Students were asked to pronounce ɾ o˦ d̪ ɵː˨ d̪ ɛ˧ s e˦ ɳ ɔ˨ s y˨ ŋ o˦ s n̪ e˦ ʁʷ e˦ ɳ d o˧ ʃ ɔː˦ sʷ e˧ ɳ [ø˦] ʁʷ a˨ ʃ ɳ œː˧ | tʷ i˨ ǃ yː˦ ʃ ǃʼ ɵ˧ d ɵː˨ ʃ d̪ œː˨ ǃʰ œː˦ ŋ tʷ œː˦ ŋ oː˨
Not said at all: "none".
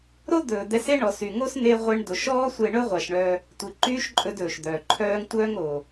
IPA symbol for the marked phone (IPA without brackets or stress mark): ɵ˦